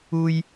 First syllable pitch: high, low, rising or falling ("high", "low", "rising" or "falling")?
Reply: high